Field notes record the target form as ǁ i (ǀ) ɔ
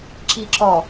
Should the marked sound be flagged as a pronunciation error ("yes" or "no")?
yes